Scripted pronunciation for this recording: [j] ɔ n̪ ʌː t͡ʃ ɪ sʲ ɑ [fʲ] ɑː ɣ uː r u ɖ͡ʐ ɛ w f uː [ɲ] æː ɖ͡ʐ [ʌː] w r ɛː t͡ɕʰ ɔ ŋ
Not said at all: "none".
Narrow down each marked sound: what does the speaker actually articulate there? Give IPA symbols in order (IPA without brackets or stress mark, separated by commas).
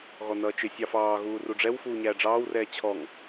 ɣ, f, ɲ, ɑː